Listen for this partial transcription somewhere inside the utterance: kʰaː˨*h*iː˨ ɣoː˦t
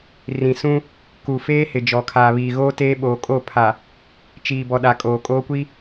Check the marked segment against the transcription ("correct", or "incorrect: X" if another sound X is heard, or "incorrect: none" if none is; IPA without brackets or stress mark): incorrect: β